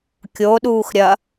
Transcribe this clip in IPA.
kʲoɗuːx ɾʲɐ

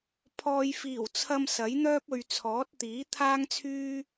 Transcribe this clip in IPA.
pʰɔː˨jfiː˨˩wt͡sʰɐ˧m sɐ˨˥jn̪œː˥p̚ɵ˨ɥt͡sʰɔː˨˥t̚ t̪iː˨˥t̪ʰaː˥ŋt͡sʰyː˥

